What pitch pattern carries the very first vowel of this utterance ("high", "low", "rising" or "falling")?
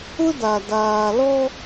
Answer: high